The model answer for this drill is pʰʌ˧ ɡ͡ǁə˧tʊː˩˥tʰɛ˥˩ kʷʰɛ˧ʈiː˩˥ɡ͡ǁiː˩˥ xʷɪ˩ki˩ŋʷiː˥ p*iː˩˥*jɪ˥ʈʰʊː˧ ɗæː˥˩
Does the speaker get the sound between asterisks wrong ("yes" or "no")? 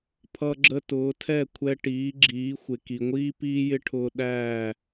yes